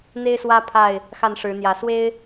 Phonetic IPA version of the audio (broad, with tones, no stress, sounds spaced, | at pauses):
n̪ e˦ ɪ̯ s w ä˦ pʰ a˥˨ ɪ̯ | x a˥˨ n ʂ ɻ̩˨˦ n̪ j ä˨˦ s w e˦ ɪ̯